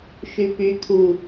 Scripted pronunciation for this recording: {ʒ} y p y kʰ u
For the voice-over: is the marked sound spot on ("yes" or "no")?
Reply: no